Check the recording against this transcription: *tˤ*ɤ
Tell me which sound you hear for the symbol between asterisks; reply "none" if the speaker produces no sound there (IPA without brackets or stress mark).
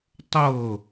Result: tˤ